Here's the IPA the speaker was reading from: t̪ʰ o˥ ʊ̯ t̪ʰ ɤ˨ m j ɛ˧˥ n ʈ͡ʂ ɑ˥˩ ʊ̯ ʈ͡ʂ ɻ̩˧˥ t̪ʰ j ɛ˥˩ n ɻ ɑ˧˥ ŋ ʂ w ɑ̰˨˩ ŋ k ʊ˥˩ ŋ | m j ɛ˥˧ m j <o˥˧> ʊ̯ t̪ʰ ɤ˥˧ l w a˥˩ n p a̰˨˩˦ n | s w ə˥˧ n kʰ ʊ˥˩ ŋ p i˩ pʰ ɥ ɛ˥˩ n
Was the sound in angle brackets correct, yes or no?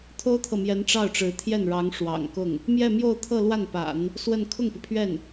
yes